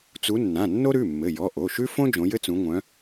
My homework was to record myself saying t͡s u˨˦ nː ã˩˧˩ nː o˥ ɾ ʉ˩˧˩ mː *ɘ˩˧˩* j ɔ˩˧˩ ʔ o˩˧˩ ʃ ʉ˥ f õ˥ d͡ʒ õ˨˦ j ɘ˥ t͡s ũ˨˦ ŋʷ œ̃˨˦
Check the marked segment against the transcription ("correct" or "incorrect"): correct